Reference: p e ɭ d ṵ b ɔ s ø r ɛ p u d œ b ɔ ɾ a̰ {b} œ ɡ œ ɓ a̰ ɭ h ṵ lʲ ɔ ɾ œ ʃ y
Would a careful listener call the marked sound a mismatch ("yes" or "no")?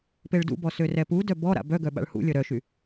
no